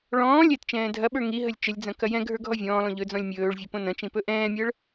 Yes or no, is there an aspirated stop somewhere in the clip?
no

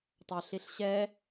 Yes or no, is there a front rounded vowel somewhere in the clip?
yes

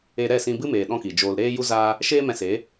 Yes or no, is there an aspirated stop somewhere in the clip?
no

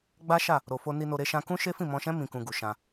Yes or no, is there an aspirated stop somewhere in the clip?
no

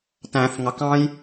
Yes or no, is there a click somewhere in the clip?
no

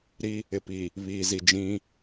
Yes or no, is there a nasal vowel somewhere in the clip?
yes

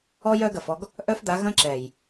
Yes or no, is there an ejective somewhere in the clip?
no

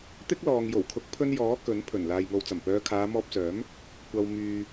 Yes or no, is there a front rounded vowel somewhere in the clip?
yes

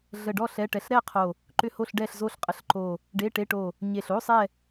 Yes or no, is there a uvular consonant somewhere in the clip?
yes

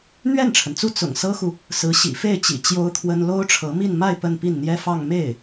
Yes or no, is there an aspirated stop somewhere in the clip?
yes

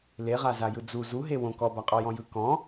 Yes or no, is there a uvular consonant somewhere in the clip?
yes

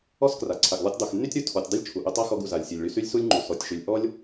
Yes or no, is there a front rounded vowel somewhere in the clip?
yes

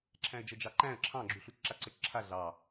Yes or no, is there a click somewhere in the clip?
yes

